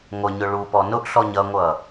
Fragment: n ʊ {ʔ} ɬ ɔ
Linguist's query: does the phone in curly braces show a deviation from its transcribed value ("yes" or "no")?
no